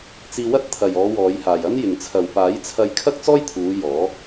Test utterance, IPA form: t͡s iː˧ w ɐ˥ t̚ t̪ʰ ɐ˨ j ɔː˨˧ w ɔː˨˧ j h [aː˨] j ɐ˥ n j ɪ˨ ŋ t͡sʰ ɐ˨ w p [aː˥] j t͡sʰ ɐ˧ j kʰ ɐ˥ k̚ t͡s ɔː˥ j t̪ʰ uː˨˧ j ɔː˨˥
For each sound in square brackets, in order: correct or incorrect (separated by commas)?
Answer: correct, incorrect